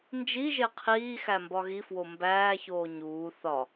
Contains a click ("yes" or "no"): no